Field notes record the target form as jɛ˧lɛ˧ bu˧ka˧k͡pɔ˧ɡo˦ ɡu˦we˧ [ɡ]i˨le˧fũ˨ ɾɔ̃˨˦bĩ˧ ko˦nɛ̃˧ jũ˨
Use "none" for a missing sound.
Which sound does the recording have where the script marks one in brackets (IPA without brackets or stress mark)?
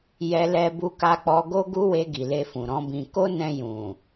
ɡ